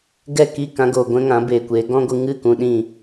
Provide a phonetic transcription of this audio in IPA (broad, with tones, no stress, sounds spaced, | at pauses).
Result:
ɡ ɛ˦˨ k i˦˨ k ã˧ ɡ oː˨ ɡʷ ɛ̃˦ ŋ ã˨˦ b eː˨ kʷ eː˨˦ ɡ ɔ̃˦ ɡʷ ɨ˧ ŋ ɨ˦˨ k ũ˦ ɗ ĩ˦˨